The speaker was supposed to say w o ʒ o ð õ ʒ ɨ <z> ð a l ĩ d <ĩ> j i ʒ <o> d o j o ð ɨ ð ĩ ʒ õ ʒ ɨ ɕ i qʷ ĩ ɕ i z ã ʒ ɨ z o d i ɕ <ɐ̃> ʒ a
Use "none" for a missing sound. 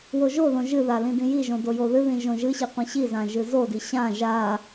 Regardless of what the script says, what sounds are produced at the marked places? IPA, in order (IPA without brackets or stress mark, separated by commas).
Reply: none, ĩ, õ, ã